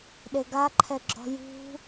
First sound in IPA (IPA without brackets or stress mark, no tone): ɗ